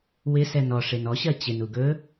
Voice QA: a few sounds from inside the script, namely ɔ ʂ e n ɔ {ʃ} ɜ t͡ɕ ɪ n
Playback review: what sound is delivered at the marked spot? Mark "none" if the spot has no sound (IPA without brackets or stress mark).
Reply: ɕ